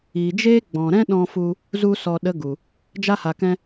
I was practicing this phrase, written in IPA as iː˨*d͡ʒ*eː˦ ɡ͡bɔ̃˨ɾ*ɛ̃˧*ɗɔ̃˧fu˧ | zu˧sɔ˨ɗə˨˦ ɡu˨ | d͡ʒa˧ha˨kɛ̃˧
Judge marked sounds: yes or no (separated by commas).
yes, no